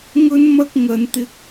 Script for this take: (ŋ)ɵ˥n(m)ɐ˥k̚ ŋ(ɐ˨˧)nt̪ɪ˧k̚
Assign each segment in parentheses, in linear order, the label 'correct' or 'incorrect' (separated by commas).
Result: correct, correct, correct